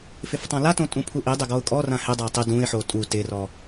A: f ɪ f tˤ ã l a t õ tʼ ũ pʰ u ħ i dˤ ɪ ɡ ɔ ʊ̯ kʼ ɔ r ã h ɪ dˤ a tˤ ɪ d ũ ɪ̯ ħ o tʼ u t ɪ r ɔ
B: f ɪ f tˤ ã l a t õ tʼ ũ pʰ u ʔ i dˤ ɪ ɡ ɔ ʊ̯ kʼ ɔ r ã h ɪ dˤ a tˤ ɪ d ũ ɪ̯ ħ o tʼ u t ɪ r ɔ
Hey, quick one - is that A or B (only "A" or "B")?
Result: B